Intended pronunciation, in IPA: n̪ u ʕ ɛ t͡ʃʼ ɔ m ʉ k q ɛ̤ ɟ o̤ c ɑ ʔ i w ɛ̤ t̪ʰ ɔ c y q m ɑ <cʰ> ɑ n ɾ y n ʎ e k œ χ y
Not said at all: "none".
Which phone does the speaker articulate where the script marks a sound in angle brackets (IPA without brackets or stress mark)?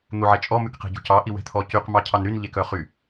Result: cʰ